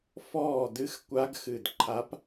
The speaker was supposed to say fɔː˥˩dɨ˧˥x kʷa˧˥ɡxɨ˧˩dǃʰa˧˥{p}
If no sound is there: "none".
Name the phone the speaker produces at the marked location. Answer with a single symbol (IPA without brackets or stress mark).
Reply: p